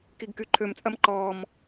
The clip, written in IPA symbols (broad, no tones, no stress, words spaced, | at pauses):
kiɡkyǃʰømt͡sʼɐm ǃɔːm